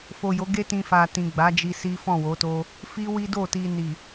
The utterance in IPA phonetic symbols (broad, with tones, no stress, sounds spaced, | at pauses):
f o˨ j o˨˦ ɡ e˦ t ĩ˧ f a˨ t ĩ˨ ɡ͡b a˨˦ d͡ʒ i˧ s i˦ f ɔ̃˦˨ w o˨˦ t o˦ | f i˦ w i˦ d o˦˨ t i˧ n i˨